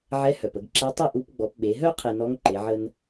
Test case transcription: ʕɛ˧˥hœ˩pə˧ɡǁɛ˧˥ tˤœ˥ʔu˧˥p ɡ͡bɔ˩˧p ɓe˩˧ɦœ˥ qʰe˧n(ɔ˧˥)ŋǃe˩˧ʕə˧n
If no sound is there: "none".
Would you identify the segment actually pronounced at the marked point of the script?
ɔ˧˥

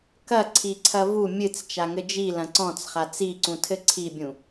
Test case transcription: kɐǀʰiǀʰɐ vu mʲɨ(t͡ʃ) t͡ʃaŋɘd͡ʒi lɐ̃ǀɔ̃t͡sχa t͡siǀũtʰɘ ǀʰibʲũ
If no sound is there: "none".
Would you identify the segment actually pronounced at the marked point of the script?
t͡s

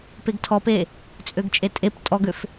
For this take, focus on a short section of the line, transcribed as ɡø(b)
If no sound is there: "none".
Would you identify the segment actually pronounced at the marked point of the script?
f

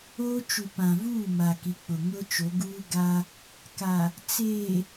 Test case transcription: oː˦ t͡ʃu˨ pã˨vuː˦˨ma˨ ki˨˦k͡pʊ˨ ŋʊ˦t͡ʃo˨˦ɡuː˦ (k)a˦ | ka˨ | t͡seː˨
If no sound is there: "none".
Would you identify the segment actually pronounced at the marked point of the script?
ɡ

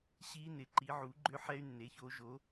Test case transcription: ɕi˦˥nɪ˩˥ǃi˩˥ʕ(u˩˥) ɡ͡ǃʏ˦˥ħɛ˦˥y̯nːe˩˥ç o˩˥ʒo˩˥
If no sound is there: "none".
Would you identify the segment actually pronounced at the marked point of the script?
u˩˥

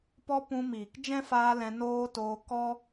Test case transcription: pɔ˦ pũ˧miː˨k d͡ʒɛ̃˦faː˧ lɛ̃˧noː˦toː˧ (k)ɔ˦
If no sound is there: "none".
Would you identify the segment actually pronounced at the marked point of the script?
k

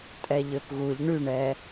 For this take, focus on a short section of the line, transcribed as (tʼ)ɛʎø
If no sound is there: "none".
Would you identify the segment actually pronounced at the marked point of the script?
tʼ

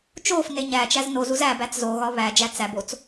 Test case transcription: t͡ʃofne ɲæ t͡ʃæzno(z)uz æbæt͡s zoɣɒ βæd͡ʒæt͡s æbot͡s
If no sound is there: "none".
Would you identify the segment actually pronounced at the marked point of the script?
z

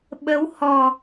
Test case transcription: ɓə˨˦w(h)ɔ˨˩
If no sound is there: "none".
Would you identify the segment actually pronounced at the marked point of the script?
h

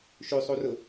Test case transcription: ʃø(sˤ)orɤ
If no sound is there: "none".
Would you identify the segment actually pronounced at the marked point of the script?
sˤ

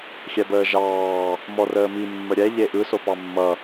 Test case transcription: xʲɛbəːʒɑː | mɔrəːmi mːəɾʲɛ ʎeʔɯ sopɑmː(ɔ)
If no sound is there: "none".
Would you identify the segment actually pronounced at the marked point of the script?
ʌ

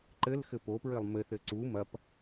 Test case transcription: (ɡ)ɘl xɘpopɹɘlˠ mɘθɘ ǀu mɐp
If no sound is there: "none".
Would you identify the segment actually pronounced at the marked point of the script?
ǃ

